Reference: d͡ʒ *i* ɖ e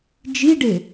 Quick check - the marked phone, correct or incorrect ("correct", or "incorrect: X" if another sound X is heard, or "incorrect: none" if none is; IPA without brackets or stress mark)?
correct